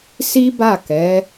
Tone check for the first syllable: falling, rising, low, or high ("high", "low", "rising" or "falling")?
high